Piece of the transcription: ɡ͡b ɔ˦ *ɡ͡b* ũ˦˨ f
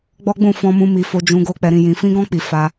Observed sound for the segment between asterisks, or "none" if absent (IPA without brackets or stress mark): ɡ͡b